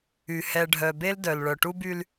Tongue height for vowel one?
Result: high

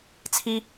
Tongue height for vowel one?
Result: high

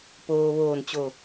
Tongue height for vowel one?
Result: mid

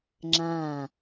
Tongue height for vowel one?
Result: low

